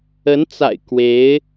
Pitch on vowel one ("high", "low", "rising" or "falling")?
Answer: rising